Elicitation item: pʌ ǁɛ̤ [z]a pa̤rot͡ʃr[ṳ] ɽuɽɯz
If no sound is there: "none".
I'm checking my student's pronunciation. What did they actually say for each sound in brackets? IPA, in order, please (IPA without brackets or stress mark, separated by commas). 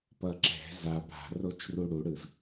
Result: z, u